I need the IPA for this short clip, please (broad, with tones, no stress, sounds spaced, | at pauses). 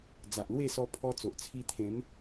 d͡z a˨ ʔ l w e˥˧ s ɔ˧ pʰ ɔ˧ t͡s o˨ ʔ t͡sʰ i˧ t̪ʰ ẽ˨˦ m